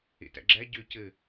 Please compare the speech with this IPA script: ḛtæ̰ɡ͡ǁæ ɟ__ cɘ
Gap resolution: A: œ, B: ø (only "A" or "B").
B